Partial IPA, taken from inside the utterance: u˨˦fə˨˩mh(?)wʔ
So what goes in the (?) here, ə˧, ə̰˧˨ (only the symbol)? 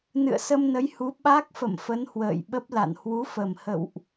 ə̰˧˨